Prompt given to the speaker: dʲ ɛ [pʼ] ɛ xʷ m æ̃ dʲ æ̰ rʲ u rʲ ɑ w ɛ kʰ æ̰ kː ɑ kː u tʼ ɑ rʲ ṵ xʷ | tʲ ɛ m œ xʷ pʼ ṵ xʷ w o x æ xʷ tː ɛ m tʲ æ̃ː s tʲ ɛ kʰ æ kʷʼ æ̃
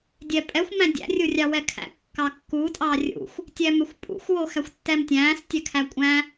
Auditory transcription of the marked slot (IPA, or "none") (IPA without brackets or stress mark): pʼ